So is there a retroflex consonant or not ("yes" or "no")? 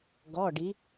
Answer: yes